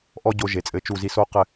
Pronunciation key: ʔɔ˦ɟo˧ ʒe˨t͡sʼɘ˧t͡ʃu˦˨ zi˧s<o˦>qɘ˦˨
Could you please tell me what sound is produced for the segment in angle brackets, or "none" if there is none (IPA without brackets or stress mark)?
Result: o˦